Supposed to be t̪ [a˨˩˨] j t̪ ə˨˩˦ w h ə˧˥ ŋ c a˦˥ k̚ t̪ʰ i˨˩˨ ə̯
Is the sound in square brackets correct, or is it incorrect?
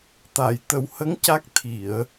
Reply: correct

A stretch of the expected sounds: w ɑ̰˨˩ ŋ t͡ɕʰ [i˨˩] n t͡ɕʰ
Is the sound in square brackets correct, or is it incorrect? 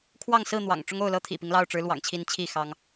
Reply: incorrect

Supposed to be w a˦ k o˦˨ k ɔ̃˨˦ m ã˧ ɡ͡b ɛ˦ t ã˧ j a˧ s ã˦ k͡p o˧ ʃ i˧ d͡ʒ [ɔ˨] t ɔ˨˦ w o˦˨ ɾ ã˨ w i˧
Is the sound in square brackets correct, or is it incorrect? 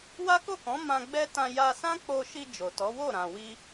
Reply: incorrect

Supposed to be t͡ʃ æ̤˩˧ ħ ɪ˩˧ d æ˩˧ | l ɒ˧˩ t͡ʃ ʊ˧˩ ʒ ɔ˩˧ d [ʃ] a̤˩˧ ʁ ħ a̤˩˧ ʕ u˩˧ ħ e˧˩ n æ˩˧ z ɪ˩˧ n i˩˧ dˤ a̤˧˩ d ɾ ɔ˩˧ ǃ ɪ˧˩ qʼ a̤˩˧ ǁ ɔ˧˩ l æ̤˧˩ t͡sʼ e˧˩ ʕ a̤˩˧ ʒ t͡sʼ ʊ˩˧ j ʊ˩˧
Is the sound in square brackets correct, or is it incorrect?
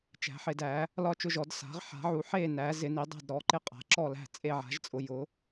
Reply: incorrect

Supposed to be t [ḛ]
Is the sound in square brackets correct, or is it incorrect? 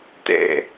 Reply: correct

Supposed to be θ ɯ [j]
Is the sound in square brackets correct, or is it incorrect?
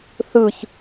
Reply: incorrect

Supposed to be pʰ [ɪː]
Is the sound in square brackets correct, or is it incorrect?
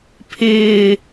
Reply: correct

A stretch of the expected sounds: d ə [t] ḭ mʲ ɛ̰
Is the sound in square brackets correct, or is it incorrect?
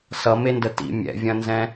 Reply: correct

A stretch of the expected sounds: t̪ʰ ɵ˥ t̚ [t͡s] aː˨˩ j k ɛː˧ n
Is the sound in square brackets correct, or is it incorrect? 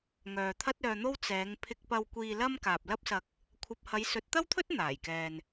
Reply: incorrect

